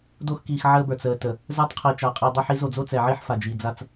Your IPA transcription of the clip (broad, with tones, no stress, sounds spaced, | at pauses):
d o˦ x k iː˨ x ʕ əː˦ b ə˞˨ t͡s əː˨ t ə˨ | z ə˞˦ tˤ qʰ i˨ t͡ʃ a˨ qʼ i˨ dˤ ə˦ ħ i˨˦ z o˨ d͡z o˦ t͡s ɛ˨ ʕ i˦ ħ f a˨ d͡ʒ i˨ d͡z a˦ t͡s